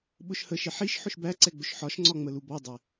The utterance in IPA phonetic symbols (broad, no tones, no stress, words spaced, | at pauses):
ɓʊʃhəʃɪ ħiʃ ħʊʃbæǀɛ ɡ͡bʊʃħɒʃŋ͡ǀɒ ŋ͡məlubɔdˤɛ